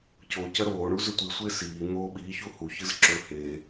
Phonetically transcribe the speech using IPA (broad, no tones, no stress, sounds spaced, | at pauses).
c o c ɐ ɾ oː ɳ u z ɵ tʷ i sʷ e s iː n̪ oː ɓ iː ç u h u ç ɨ z ǁ ɵ h e